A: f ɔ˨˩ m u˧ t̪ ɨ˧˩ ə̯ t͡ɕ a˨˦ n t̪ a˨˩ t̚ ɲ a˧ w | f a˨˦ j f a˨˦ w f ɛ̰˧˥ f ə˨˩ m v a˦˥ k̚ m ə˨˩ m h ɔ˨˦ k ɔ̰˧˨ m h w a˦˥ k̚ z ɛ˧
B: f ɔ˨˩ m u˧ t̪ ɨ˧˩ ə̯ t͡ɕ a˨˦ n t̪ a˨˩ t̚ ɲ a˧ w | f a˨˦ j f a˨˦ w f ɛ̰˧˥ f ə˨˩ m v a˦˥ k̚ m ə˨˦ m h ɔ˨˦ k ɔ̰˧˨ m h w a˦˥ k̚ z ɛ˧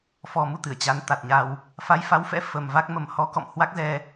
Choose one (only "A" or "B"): A